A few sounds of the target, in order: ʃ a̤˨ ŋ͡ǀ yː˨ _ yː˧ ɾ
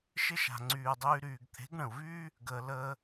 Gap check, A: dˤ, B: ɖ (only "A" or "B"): A